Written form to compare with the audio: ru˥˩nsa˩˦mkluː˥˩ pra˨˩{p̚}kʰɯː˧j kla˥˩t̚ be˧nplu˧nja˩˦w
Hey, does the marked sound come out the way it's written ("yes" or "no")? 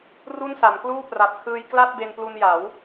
yes